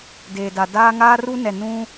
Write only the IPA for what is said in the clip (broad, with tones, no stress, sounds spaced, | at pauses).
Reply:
d eː˨ d a˨ d aː˦ ŋ aː˦ r u˦ n ɛ˨ n ũ˦